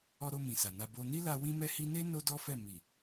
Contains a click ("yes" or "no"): no